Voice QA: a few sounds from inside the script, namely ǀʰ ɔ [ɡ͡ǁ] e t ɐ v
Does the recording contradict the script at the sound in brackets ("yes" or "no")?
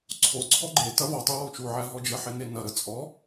yes